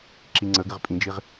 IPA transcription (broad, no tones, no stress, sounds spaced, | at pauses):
ǁ i ŋ͡ǀ ə ɡ ɪ ʁ pʼ ĩ d͡ʒ i ʁ